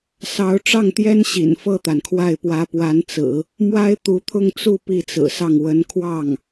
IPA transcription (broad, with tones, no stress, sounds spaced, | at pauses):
s ɑ˧˥ ʊ̯ ʈ͡ʂ ɑ˥˩ ŋ t̪ j ɛ˥ n ɕ ḭ˨˩ n f ɤ˥˩ t̪ a˩ n kʰ w a˥˩ ɪ̯ p w ä˧˥ p w a˧˥ n t͡s ɹ̩˨˩˦ | m w a˥ ɪ̯ t̪ u˧˥ t̪ʰ ʊ˥˧ ŋ t͡s u˥˧ p i˥˩ t͡s ɹ̩˨˩ s ɑ˥˩ ŋ w ə˧˥ n kʰ w ɑ˥˩ ŋ